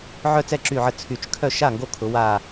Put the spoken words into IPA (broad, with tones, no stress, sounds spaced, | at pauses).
ʕ œ˥˩ t͡s ɛ˥˩ ǁ y˧˩ ʕ ə˧˩ t͡sʰ y˨˩˦ t͡ʃ kʰ œ˥˩ ʃ a˥˩ ŋ ɡ o˦˥ kʰ ʊ˨˩˦ w a˧˩